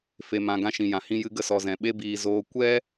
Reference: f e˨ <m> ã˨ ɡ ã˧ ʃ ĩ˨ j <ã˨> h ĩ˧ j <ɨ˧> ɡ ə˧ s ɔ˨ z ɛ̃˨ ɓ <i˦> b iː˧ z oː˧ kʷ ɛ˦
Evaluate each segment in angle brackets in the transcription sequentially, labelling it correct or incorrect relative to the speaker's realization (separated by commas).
correct, correct, correct, incorrect